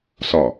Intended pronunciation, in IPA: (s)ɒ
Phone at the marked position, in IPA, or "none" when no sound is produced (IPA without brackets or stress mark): s